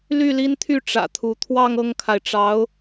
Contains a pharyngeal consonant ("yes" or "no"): no